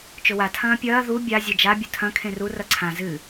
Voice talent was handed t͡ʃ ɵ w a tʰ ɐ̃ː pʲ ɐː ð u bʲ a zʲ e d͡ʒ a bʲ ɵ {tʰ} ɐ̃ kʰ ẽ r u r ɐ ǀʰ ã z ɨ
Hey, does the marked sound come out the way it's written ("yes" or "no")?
yes